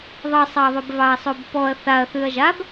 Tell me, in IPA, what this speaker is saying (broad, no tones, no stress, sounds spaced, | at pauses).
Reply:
ðˤ ʌ sˤ ɑ ðˤ ʉ b v ɑ ɐ̯ sˤ o b p ɔ ɐ̯ θ a ɐ̯ θ ʉ ɐ̯ ʒ a b